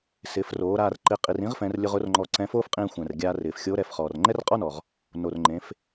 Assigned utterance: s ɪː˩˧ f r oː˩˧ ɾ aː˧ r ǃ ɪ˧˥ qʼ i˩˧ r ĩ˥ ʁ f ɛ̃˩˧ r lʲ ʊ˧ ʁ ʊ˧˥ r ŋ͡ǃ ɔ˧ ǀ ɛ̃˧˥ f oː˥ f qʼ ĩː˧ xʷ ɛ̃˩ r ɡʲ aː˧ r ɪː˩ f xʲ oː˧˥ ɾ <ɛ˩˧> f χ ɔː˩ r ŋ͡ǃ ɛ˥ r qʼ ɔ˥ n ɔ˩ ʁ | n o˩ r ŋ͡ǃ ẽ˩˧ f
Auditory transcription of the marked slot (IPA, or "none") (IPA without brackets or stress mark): ɛ˩˧